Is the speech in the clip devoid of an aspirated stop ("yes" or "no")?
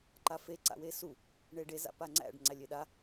yes